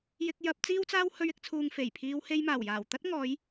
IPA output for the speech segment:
jɪ˧k̚jɐ˧p̚ t͡siː˥wt͡saː˥w hɵ˧ɥɪ˧k̚t͡sʰuː˨ŋ fe˨˩jpʰiː˧w he˧jmaː˨˩wjaː˨˩wt̪ɐ˥t̚ ŋɔː˨˧j

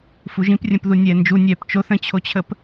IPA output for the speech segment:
fuʒĩprʲə̃pðu nʲɛːnd͡ʒu nʲɛːpt͡ʃoθ ə̃t͡ɕʰot͡ɕʰəp

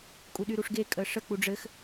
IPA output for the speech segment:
kʼuɗyɾuʂɡe kʼəʂə k͡puɖ͡ʐɘx

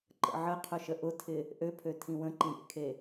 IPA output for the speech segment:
ǃə̰ʕəqʰʊ ʃəʔʊtʰɪ | ʔøpʰø tʰĩwə̃ǃĩ ɾʲḛkʰe

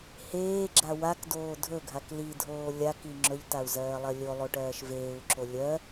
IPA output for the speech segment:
heːɡ͡ǁa wakdoː dʱɵɡʱak lidʱoː lʲaki ŋ͡ǁɵʎtau̯zɜːlˠɜ lʲolˠoʈɜːʃ veːu̯ǁo lʲɜ

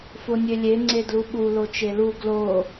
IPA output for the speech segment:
fonʲølʲe ŋ͡ǀedluɓu lot͡ʃelu ɡlo

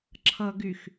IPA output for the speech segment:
ǁʰʌɡyx

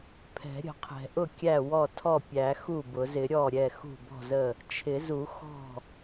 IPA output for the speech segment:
pʰɛ̤˨˩˦ɾʲə̤˨˩˦qʰɛ̤˨˩˦ʔʊ˥˩ kʲæ˥˩wɔ˥˩tʰɔ˥˩pʲæ˨˩˦ xu˥˩bʊ˨˩˦zɪ˨˩˦ ɾʲɔ˥˩ɾʲɛ˥˩ xṳ˥˩bɔ̤˥˩zə˥˩ | t͡ʃʰɪ˨˩˦zu˨˩˦ xɔ̤˥˩

